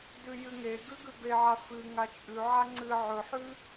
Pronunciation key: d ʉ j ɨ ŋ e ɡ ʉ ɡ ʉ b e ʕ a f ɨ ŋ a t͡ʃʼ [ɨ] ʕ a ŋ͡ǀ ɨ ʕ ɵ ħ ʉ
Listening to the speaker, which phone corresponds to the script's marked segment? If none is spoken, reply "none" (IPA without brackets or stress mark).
ʉ